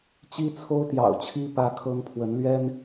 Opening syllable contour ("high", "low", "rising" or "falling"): high